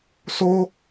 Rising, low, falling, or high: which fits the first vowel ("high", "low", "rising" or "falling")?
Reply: high